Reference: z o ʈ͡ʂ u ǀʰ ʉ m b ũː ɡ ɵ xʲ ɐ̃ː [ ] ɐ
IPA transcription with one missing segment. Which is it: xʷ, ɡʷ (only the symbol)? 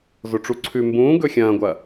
ɡʷ